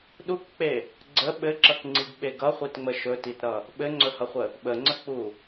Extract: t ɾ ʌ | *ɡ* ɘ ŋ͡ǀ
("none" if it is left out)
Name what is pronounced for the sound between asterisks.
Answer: ɓ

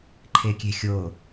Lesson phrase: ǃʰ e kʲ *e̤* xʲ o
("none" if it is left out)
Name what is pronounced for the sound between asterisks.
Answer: e̤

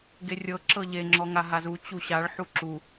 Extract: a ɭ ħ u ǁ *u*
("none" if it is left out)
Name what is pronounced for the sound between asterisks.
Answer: u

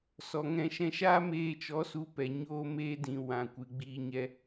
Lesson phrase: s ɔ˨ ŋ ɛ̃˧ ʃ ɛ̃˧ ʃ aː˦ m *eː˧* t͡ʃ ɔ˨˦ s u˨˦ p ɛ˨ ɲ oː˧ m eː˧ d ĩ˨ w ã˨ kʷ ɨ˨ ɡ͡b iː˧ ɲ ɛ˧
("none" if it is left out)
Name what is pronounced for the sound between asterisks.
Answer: eː˧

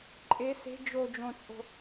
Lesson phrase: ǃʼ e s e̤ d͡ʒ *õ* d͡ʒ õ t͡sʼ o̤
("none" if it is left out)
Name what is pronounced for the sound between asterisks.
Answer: o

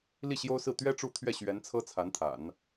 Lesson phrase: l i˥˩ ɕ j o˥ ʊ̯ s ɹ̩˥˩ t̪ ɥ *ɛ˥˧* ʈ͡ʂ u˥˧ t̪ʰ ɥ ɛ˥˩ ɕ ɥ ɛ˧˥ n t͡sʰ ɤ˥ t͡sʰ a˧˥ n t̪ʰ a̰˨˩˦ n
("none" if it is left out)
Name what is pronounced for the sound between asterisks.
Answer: ɛ˥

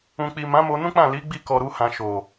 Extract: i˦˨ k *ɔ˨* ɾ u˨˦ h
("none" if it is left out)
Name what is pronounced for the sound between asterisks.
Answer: ɔ˨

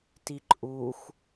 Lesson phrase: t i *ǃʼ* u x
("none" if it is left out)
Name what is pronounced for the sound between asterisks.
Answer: ǃʼ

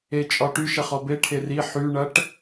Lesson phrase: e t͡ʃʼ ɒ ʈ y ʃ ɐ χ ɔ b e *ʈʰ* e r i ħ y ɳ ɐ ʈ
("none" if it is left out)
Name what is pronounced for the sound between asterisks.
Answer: ʈʰ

